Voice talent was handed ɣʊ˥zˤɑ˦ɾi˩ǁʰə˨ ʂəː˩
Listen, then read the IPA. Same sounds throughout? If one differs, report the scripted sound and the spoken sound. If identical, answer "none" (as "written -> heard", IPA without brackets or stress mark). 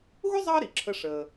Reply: none